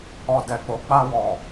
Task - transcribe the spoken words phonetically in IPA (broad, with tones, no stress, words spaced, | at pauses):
ɔ˨ dɛ˨k͡po˨˦ k͡pa˧wɔ˨